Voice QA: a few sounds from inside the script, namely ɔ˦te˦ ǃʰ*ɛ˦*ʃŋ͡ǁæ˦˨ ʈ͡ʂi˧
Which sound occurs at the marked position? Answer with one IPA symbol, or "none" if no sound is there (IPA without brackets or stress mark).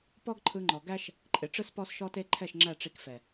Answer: ɛ˦˨